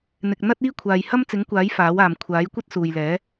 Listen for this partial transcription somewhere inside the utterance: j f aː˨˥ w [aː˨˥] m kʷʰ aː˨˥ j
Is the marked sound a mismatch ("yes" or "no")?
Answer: yes